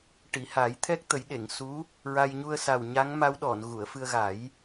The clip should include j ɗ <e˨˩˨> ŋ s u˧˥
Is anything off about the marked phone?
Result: no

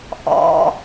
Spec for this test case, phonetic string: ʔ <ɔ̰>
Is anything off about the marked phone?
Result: no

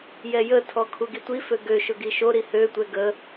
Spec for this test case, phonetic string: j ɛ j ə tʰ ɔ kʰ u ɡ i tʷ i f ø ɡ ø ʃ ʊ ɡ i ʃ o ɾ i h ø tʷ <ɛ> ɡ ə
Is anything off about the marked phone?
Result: no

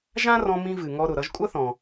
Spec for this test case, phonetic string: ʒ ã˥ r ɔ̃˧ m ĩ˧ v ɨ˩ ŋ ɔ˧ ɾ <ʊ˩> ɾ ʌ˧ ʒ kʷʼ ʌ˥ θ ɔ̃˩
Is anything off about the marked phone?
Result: no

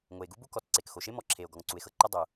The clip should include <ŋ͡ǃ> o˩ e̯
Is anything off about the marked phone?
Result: yes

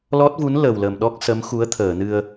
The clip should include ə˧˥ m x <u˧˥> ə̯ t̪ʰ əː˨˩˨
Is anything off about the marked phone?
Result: no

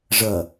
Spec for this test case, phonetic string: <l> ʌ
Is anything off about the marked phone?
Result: yes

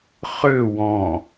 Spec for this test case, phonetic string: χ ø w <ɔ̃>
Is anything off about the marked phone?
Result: no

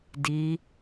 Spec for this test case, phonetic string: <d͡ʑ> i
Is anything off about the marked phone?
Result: yes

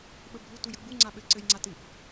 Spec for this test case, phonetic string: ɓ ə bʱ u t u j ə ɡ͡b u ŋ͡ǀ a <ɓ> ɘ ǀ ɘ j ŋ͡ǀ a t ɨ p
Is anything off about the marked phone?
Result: no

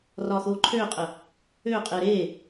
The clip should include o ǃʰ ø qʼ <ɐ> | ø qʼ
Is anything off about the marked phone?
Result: yes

